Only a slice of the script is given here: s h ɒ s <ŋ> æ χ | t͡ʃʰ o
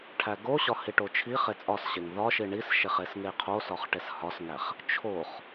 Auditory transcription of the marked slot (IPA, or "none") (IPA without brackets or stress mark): ŋ